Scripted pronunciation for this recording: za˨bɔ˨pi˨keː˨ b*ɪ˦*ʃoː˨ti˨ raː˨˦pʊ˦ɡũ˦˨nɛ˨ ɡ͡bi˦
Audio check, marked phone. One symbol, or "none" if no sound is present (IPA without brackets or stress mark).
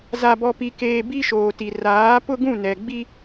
i˦